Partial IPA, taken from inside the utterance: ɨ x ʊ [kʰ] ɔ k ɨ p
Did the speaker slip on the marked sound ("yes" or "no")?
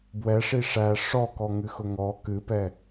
yes